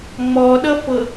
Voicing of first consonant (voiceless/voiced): voiced